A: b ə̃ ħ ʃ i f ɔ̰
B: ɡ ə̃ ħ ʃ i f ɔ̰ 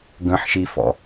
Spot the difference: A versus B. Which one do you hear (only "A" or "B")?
B